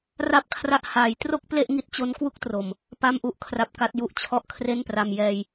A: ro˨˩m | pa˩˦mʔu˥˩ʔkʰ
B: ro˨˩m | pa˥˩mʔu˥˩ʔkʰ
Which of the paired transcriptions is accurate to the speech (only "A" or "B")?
B